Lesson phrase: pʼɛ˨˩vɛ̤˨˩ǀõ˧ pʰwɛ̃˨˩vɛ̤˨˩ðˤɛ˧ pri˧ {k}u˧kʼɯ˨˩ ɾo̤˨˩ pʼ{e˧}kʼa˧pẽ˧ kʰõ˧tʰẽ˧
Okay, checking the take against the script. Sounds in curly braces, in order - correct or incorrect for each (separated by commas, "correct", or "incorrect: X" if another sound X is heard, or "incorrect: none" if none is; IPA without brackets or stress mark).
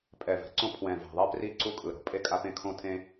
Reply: incorrect: ǀ, correct